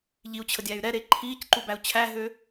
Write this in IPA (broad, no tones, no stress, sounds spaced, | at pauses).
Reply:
ʎ i u̯ t͡ɕʰ ə dʲ æ y̯ ɾ ɛ ɾ e ǃʰ iː c ǃ u b æ u̯ t͡ɕʰ æ ɦ ø